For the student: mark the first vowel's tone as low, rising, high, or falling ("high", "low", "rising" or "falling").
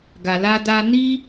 low